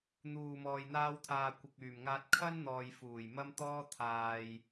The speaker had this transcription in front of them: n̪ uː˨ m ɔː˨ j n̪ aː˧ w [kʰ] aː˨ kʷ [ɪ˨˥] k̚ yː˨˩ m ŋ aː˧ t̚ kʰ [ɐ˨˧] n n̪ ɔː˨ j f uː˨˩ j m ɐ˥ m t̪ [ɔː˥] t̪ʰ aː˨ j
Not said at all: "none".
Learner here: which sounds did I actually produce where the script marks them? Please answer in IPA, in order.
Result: t̪ʰ, ɪ˨, ɐ˥, ɔː˥

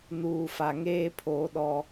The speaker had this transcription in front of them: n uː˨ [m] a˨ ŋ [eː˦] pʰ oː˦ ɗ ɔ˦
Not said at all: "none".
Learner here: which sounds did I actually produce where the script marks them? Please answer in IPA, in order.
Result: f, eː˦

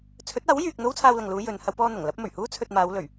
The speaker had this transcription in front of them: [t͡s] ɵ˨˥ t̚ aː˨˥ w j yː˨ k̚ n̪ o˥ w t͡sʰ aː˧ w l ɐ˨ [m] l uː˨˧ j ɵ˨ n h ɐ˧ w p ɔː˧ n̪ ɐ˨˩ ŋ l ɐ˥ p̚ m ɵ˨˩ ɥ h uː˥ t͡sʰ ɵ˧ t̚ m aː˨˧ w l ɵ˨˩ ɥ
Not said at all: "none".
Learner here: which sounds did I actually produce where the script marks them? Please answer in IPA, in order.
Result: t͡sʰ, ŋ

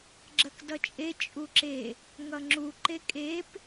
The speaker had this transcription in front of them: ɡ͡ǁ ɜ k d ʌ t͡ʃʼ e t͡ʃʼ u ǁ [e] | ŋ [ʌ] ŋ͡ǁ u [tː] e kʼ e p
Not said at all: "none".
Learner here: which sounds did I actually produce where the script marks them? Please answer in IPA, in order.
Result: e, ʌ, ǃ

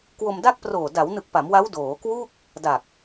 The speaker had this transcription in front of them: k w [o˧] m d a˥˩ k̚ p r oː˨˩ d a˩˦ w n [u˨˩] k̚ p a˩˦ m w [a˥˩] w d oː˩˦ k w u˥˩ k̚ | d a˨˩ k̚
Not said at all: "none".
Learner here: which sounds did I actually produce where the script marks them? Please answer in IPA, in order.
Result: o˧, ɯ˨˩, a˦˥

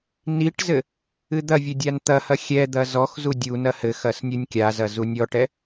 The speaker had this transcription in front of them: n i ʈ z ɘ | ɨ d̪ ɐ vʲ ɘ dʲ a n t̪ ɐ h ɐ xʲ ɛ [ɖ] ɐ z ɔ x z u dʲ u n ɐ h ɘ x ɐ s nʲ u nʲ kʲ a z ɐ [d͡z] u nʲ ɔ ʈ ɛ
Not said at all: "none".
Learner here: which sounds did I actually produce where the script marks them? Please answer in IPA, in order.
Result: d̪, z

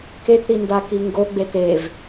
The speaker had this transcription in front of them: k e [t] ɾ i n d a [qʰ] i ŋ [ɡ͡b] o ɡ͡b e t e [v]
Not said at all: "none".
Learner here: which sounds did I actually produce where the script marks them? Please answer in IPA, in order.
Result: t, k, ɡ, v

